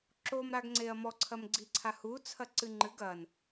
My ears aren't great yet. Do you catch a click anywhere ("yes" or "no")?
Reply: yes